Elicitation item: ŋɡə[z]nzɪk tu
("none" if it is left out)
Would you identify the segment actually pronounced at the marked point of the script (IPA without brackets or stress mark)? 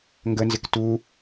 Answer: none